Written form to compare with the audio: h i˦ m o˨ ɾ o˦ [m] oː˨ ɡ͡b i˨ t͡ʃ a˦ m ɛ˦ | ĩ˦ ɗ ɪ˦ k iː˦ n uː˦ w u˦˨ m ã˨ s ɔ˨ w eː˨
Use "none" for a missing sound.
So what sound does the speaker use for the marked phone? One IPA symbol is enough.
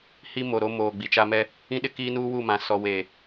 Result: m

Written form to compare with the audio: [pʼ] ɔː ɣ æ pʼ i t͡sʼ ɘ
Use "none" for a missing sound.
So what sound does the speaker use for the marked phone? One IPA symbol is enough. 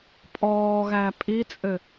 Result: pʼ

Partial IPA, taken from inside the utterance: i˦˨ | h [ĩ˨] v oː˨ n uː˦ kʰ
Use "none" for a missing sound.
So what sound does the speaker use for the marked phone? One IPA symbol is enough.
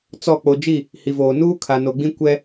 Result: i˨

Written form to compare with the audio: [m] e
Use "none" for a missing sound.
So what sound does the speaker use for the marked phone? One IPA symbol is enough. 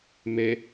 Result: m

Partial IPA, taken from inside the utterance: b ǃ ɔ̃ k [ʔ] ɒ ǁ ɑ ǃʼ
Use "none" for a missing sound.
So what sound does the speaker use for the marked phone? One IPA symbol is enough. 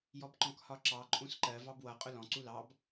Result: h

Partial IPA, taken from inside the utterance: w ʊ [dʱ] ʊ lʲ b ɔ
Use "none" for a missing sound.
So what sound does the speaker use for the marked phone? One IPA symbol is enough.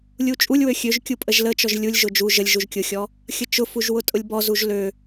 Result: tʼ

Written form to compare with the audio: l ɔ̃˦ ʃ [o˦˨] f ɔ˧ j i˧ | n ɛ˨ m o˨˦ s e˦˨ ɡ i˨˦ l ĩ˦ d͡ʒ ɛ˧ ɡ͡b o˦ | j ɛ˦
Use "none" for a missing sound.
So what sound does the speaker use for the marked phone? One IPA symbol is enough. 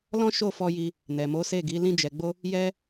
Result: o˦˨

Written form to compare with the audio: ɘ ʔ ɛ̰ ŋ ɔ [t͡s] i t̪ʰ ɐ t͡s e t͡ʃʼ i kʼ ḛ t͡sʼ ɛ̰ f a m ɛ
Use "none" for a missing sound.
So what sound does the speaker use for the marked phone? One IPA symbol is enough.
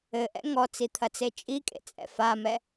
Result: t͡s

